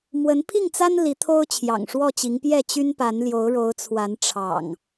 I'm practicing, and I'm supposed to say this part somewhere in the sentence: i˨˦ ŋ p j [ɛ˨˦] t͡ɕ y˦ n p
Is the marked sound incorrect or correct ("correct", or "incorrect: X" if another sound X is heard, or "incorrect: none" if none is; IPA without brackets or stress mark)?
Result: incorrect: ɛ˥˨